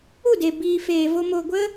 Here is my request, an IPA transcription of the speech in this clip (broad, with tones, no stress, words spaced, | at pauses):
u˦˨de˨ biː˨feː˨ vo˧ mo˨ ɡʷə˦